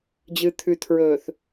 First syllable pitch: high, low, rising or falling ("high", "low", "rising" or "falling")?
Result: low